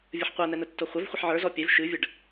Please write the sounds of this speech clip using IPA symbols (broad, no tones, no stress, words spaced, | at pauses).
vʲəħqʷɐnɛ nətːoχʷɐvχʷəħ ʕə˞zɔ pʲɛv ʃɨvʲəɖ